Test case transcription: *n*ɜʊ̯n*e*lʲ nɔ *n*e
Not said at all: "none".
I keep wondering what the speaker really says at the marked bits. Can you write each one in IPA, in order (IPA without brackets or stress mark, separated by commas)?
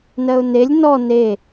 n, e, n